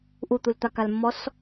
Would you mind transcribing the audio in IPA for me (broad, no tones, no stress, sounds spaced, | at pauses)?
ʔ u t̪ u l t̪ a k a l mː ɔ s